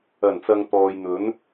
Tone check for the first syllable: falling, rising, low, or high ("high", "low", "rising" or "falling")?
low